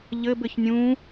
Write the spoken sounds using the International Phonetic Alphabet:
ʎɘbɘç nʲũ

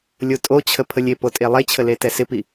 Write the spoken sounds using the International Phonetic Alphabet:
lʲotʼot͡ɕʰə pʰəlʲepo tʼelˠet͡ɕʰə letɛsɪpi

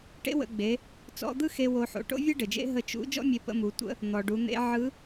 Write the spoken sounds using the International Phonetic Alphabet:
ʈḛ˧˥wə̰˩˧ɡ͡be˩˧ | t͡sɔ̰˧d̪ɯ˥xe˧ wo˧ħo̰˩˧ ʈo̰˥vʲe˥ɖɘ˩d͡ʒḛ˧˥ ɦə˧ t͡ʃṵ˧˥ d͡ʒɔ̰˥mʲe˧ pə̰˧mu˩˧ tʷə̰˥ | n̪ɔ˩ɖu˩˧n̪ḛ˧˥ ʕɯ˧˥

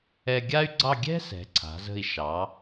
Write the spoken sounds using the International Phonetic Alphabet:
ɛ˧ɡʲa˥y̯ɡ͡ǀɑ˥˧ ɡʲɛ̤˥ sɛ̤˩˧ǀʰa̤˩˧ zə̤˧˩i̯ ʃɑ˩˧

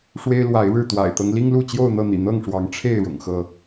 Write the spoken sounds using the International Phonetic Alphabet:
ʂwe˦ɪ̯lwa˨˦ɪ̯ɻɻ̩˥˨ t̪wa̰˨˩ɪ̯t̪ɤ˦ŋli˦ŋlu˥˨ t͡ɕjo˥˨ʊ̯n̪ɤ˥˨ n̪ḭ˨˩n̪ɤ˥˨ŋʂwɑ˨˦ŋ ʈ͡ʂʰe˥˨ɪ̯ ɻʊ̰˨˩ŋxɤ˥˨

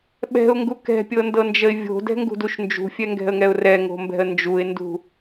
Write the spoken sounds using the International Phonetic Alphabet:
ɓɛ̤ʊ̯ŋɡu kɛ̤pʲɤndɤnd͡ʒəɪ̯ vʲo̤dɛ̤ŋɡṳduʃ nd͡ʒṳfʲɛŋɡɛ̤ə̯ŋɛʊ̯ rɛŋo̤mbɛ̤ə̯ nd͡ʒuɪ̯ndṳ

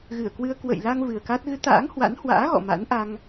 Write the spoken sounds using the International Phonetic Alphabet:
ɣɨ˧˩ə̯kwɨ˧ə̯ kwə̰˧˨jla˧ŋ vɨ˨˩ə̯ka˦˥t̚ ɣɨ˨˦t̪a̰ː˧˥ŋhwa̰˧˥nhwa̰ː˧˥ ɣɔ̰˧˨ma̰˧˥nʔa˧ŋ

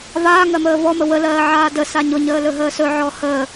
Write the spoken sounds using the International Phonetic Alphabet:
vaːŋɜməː vɔmə wəlɜːʕaː dəsa ɲʊɲəːlɵɦəː sɵʕɔ həː

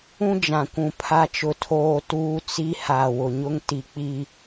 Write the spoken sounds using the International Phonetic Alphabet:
ũ˦d͡ʒã˨kʷũ˨ pʰa˦t͡ʃʊ˦tʰoː˦ tuː˦t͡si˦ ha˨ wʊ˨ɲʊ˦ŋti˨ k͡pi˨

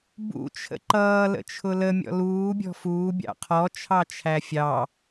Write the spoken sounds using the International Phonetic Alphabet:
bṵ t͡ʃʰə̰ǃʌː lə̰t͡ʃʰʊlə mʲɔ̰luː bʲɔ̤fuː bʲɑ̰qʰɔ t͡ʃʰɑt͡ʃʰæfʲɑ

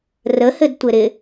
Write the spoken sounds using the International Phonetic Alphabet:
rəhɘdtʷɘɾɪ

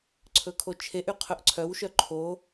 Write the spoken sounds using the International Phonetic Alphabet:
ǀʰɵkʰot͡ʃʰeʔy qʰɵʔǀʰœwʃœ ǃʰo

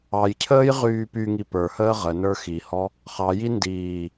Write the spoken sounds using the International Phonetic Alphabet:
ɑjcʰəːj ʁyːpyŋi pə˞həː ʁənə˞ xihɔ | χɑji ndiː

